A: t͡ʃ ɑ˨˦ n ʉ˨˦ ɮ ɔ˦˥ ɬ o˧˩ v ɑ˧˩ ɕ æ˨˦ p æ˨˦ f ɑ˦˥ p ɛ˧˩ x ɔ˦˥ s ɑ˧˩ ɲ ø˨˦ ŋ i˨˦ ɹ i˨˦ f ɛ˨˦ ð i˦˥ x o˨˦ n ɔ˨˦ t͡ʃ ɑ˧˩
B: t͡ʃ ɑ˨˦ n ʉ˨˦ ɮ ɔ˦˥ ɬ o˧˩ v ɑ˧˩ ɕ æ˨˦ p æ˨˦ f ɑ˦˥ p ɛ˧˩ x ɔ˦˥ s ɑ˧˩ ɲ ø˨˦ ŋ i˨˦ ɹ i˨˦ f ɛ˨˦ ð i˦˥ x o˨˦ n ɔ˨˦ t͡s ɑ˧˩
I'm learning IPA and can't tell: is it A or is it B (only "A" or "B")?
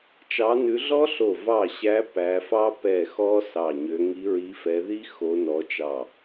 A